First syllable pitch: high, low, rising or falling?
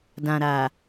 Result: low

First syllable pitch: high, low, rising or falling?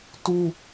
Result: high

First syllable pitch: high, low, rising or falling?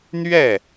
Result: falling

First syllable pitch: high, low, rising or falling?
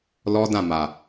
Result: high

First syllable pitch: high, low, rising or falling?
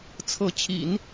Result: rising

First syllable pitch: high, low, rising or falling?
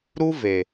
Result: high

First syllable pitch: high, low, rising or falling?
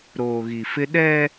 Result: low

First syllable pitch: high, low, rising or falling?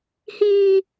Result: high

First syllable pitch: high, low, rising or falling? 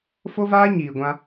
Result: high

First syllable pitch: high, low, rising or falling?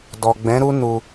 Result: low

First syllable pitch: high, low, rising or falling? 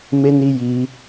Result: high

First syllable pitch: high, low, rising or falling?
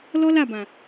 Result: high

